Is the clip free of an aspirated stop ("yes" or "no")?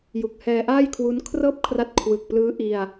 no